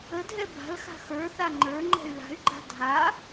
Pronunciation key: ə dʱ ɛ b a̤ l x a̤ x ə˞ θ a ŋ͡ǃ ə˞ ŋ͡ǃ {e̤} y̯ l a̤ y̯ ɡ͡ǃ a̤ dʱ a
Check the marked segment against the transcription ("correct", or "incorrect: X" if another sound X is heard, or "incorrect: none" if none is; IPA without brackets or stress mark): incorrect: ɛ̤